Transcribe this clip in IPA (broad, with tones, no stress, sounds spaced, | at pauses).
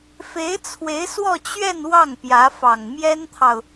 f e˧˥ ɪ̯ t͡sʰ w e˧˥ ɪ̯ s w ɔ˥˧ t͡ɕ ɥ ɛ˥˧ n w ɑ˥˩ ŋ p j ä˧˥ f ɑ˨˩ ŋ m j ɛ˥ n t̪ʰ ɑ˨ ʊ̯